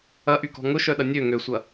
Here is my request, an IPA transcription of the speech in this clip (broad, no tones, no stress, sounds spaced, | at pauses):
ɐ ʔ y k ɔ̤ ŋ ʊ ʃ œ ɗ ɐ nʲ ø ŋ ø sʷ ɐ